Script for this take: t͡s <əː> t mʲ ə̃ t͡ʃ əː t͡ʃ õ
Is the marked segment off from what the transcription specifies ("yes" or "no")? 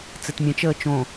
yes